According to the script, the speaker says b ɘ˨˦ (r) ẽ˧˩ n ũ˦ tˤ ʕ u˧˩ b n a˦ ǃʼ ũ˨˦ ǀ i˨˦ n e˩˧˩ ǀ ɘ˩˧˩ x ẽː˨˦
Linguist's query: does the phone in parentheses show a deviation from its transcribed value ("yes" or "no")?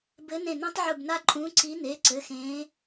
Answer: yes